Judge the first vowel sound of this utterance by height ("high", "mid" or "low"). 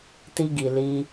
high